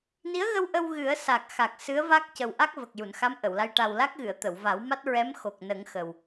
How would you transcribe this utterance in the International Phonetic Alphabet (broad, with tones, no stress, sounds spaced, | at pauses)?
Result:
n i˧˥ ə̯ ɣ ə˧ w ʔ ə˧ w ɣ ɨ˨˩˦ ə̯ s a˨˩ k̚ x a˨˩ k̚ s ɨ˧˥ ə̯ v a˦˥ k̚ c ə˨˩ w ʔ a˦˥ k̚ v ə˨˩ k̚ j u˨˩˨ n x a˧˥ m ʔ ə˨˩˨ w l a˧ j ʈ a˨˩ w l a˦˥ k̚ ɣ ɨ˨˩˨ ə̯ t̪ ə˨˩˨ w v a˨˩˦ w m a˦˥ t̚ ɹ ɛ˧˥ m x o˨˩ k̚ n ə˨˩˦ ŋ x ə˨˩ w